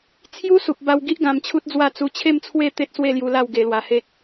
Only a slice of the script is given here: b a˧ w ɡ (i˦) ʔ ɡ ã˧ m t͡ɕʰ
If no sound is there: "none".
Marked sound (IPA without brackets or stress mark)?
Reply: i˦